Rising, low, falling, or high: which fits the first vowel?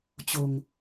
low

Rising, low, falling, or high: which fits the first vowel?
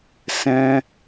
high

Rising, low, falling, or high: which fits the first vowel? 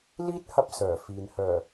high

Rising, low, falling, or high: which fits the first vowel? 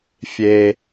low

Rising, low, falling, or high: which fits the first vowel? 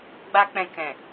high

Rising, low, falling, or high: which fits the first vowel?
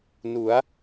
rising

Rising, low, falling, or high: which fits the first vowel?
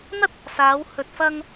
high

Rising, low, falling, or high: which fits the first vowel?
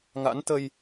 rising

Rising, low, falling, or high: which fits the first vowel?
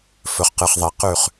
low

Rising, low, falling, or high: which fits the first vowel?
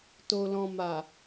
low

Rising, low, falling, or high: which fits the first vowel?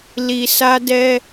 low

